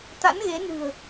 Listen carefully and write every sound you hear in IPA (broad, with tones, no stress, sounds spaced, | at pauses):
t̪ a̰˧˥ n ɣ e˨˦ n ɨ̤˨˩ ə̯